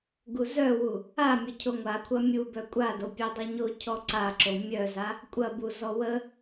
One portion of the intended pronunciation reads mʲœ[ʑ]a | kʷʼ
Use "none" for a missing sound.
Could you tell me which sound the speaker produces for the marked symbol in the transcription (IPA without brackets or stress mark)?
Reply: z